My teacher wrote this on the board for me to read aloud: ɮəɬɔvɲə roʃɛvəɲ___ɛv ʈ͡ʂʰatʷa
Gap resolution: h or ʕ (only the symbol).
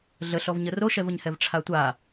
h